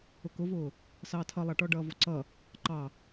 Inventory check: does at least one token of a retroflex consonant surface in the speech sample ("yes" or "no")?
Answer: yes